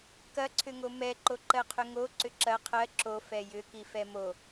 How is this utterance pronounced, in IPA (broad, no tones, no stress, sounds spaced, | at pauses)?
k ɐ ǀʰ ʏ ŋ o m ɛ ǃ o ǃ ɜ qʰ ʏ ŋ o ǀ ʏ ǁ ɐ qʰ ɜ ǁ o f ɛ j ʏ k i f ɛ m o